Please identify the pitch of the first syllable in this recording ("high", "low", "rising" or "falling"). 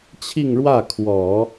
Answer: falling